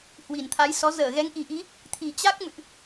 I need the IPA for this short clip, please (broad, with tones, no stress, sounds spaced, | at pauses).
h w i˨˩ n t̪ʰ a˨˦ j s ɔ˨˦ z əː˧˩ ɣ ɛ˨˦ ŋ ʔ i˨˩ ʔ i˨˦ | t̪ʰ i˨˩ t͡ɕ a˦˥ k̚ m ɨ̰˧˨ ʔ